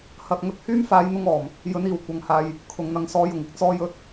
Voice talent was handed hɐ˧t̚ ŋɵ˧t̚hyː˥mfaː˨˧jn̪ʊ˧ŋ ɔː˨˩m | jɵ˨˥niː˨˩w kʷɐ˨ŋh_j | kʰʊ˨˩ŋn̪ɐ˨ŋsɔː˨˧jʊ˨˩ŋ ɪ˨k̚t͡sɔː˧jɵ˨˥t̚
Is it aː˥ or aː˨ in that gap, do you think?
aː˨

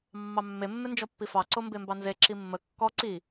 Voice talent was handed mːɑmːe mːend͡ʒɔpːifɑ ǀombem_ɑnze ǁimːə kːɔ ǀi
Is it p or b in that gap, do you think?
b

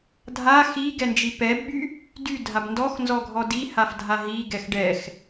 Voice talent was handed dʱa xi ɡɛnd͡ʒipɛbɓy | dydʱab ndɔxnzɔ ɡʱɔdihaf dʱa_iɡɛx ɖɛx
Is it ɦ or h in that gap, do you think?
ɦ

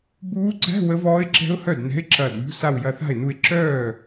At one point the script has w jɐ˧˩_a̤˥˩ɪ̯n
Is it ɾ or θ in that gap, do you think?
θ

